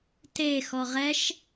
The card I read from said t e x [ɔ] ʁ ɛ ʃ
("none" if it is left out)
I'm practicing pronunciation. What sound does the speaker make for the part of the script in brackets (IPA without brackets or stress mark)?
ɔ